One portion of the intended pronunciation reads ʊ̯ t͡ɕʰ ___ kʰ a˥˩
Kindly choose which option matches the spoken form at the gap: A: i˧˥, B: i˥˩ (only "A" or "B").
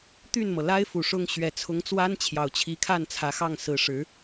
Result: A